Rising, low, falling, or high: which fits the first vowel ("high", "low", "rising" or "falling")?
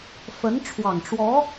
rising